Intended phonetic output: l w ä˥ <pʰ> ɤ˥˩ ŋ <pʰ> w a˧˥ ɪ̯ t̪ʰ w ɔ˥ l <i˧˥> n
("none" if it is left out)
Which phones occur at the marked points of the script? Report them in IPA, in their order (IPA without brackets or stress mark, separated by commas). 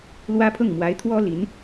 pʰ, m, i˧˥